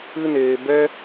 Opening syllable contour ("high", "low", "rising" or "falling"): high